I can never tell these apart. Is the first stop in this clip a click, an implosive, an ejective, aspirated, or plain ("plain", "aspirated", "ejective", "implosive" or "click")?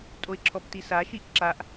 ejective